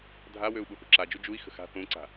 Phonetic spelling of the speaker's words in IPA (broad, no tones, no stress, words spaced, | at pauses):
dʱawøu̯ ɓuθṳǁad͡ʒu d͡ʒui̯xə̤ xa̤ θũǀa̤